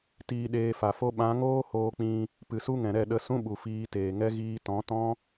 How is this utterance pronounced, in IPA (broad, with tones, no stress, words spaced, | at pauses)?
tiː˧ɗeː˧fa˨fo˦ ɓã˨˦ŋoː˦ hoː˧k͡pĩ˧ | pɨ˨su˦ŋɛ̃˨ɾɛ˦˨ ɗə˨˦ sũ˦ɓu˨ fiː˧teː˨ŋɛ˦ ɣiː˧tɔ̃˨˦tɔ̃˦